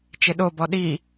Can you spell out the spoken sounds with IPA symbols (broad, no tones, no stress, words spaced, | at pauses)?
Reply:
t͡ʃɪɗobɔ ɗi